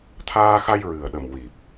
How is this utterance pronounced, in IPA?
t̪ʰ aː˧ x a˧ j ɹ ɨ˨˩ ə̯ ɗ ə˨˩ m w i˨˩ p̚

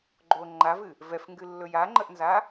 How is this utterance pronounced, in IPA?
ɡ͡ǃ o ŋ͡ǃ a v ɨ | v ɛ f ŋ ɡ ɨ lː ɵ j a ŋ͡ǃ ə ʔ n z a

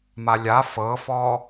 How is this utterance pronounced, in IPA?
m a lʲ a f ɤ f ɔ

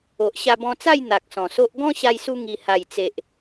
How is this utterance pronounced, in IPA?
o˨ ʔ ɕ a˧ b ɔ̃˧ t͡s a˥˧ j n̪ a˨ k̚ s ɔ̃˨˩ s o˦ ʔ ɡ ɔ̃˦ ɕ a˧ j s u˧ ŋ i˨˩ h a˨˩ j t͡s e˨ ʔ

